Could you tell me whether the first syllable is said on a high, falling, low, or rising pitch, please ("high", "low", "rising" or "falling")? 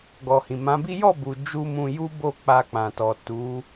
low